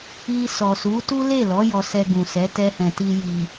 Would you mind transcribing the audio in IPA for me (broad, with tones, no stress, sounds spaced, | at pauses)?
i˧ s ɔ˨ s u˨˦ t u˦ l e˦˨ l ɔ˨˦ j ɔ˧ s ɛ˧ ɡ ũ˨ s ɛ˨˦ t ɛ˧ h ɛ̃˨ t i˧ j i˨